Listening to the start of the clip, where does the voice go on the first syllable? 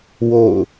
falling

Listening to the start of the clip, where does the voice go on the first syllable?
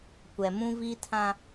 low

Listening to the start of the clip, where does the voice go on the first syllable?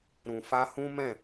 low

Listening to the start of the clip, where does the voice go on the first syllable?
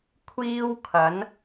high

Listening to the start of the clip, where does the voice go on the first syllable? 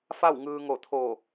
falling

